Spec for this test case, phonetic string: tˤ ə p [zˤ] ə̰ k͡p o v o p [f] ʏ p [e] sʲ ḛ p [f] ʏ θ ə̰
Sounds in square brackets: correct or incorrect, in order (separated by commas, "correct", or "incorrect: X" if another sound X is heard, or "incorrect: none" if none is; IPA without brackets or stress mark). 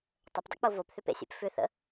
incorrect: dˤ, incorrect: θ, incorrect: ḛ, correct